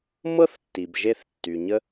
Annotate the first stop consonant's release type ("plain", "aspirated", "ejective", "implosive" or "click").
plain